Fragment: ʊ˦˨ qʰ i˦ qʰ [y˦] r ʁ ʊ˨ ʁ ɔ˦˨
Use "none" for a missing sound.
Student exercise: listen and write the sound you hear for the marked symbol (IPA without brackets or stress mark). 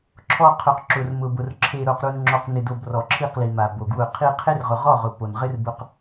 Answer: e˦